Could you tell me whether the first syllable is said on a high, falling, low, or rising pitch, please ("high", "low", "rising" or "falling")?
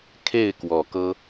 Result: falling